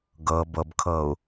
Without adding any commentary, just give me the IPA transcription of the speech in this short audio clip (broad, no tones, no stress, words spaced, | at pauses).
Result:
ɡɤ bɤbkʰɤu̯